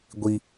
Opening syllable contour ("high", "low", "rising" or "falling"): high